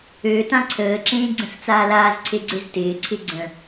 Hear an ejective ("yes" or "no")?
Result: no